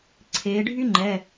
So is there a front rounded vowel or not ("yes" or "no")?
yes